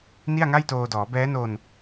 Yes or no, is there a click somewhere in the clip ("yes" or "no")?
no